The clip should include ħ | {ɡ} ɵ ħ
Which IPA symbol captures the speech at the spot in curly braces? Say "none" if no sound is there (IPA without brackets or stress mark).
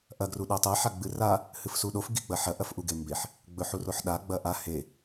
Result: ɡ͡b